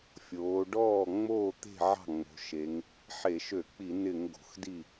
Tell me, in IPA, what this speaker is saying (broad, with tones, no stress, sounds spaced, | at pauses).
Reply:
fʲ oː˩˧ ɖ ɔː˥˩ ŋ͡m oː˥˩ t̪ e̤˥˩ ʕ ɑ̤˥˩ ŋ͡m o̤˩˧ ʃ e˩˧ ŋ | ħ e˧˩˧ ʃ ø˧˩˧ k͡p i˧˩˧ n ɪ˧˩˧ ŋ ɡ o̤˩˧ x d i˥˩